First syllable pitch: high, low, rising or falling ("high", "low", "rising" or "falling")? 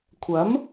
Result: rising